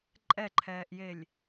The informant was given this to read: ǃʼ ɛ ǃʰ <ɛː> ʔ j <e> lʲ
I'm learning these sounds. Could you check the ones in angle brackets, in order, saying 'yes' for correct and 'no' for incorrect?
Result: yes, yes

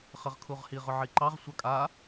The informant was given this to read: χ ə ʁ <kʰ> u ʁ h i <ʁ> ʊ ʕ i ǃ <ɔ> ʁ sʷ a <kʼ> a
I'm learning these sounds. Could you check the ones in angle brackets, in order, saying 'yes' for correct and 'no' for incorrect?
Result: yes, yes, no, yes

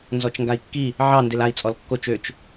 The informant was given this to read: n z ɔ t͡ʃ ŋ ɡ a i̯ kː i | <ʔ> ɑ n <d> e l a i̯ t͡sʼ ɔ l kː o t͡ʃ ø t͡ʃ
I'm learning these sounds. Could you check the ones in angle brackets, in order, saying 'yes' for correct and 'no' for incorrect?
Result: no, yes

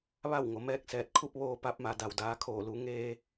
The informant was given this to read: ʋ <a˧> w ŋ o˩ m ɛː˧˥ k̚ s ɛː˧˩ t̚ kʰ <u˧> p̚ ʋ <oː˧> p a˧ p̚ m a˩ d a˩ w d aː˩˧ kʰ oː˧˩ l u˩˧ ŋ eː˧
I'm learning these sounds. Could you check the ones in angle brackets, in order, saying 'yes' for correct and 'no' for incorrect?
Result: no, no, yes

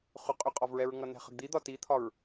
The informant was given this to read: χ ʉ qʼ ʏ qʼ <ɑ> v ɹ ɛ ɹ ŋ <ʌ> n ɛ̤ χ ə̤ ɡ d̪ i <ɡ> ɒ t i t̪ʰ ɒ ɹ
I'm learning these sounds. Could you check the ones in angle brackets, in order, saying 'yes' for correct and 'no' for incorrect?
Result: no, yes, no

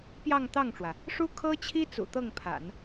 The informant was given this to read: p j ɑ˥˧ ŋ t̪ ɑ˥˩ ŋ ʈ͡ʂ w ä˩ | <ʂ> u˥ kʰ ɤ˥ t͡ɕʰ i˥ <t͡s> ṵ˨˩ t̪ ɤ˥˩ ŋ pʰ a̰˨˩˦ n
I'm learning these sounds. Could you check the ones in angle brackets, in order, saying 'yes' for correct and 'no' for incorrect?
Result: yes, yes

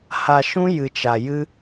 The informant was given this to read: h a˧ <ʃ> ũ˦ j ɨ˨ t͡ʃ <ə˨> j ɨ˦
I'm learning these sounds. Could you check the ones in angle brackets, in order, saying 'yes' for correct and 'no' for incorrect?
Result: yes, no

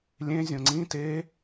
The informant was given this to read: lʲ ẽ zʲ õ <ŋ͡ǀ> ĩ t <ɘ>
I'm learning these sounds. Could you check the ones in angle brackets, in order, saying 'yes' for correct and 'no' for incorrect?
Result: yes, no

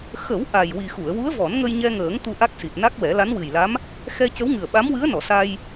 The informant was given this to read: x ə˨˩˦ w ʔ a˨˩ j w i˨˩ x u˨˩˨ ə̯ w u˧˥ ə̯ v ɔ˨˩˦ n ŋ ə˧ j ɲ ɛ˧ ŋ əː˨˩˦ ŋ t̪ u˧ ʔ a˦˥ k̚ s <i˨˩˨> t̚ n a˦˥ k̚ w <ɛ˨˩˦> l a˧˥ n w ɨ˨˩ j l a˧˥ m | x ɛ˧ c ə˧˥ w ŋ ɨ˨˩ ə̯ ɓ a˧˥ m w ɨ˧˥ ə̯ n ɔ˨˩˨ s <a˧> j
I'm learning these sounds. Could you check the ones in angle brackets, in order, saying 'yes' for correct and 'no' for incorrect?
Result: no, yes, yes

